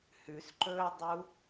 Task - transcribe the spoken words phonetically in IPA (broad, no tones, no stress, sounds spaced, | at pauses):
h ʉ s ǃ ɵː dˤ u